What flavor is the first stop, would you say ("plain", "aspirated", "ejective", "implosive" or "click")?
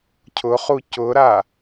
aspirated